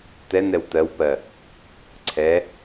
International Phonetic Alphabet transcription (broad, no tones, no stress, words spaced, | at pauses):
tɛnɛw tɜwpɜ | ǀʰɛ